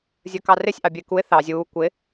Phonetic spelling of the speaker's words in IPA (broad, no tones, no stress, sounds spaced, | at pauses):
zʲ ə˞ k ɑ r ɪ sʲ ʔ ɑ bʲ ɛ ɪ̯ k u ɪ̯ θ ɑ zʲ uː kʷ ɪ